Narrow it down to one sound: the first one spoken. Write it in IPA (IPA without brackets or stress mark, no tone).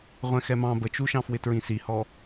ʁʷ